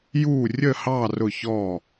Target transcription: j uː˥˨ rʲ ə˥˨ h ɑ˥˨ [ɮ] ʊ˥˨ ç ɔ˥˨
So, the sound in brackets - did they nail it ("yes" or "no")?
no